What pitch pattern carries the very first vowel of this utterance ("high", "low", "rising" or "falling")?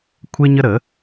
high